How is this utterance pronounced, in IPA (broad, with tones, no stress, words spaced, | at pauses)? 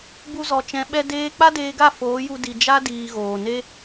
bu˧zɔ˨t͡ʃɛ̃˨˦ ɓɛ˧ deː˦ k͡pa˦deː˧ɡa˦˨ foː˨˦ju˧ di˨d͡ʒa˦ diː˧ɣoː˨ ne˦